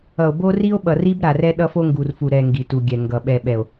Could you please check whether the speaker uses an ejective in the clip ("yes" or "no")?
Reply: no